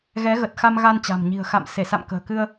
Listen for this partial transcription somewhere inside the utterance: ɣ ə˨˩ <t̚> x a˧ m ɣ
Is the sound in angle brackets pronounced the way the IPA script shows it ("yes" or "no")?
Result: yes